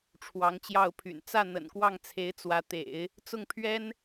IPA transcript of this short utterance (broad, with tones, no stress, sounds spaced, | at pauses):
ʈ͡ʂʰ w ɑ˧˥ ŋ t͡ɕ j ɑ˥˩ ʊ̯ pʰ y̰˨˩ n t͡s ä˥˩ n̪ ə̰˨˩ n k w ɑ˥˩ ŋ t͡sʰ e˧˥ ɪ̯ t͡s w ä˧˥ t̪ ḛ˨˩˦ ɪ̯ | t͡s ʊ˥˩ ŋ pʰ ɥ ɛ˥ n